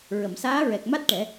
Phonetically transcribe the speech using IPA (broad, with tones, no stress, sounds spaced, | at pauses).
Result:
ɹ ə˨˩˨ m s aː˧˥ ɹ ɛ˨˩ k̚ m a˦˥ t̚ ʈ ɛ˨˩˦